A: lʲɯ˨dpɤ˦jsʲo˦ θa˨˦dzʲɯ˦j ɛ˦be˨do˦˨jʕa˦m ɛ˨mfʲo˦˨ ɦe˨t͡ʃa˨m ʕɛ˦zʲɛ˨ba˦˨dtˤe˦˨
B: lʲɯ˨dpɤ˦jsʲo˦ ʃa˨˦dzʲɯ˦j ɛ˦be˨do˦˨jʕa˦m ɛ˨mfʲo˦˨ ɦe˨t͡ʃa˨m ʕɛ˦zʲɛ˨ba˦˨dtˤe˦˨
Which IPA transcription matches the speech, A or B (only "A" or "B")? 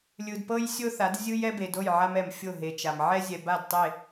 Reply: A